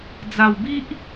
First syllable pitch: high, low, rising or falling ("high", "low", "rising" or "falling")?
low